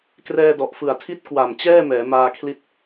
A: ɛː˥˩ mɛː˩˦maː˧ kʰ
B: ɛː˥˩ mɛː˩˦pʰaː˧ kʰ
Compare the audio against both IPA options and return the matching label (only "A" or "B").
A